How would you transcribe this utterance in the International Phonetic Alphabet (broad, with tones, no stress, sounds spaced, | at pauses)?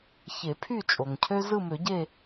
ç e˨˩˦ pʰ y˦˨ t͡ʃʼ o˩ ŋ cʰ ø˦ z ɯ˦˨ m ø˨˩˦ ɟ e˦˨